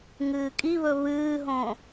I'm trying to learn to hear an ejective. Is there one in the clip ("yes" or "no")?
yes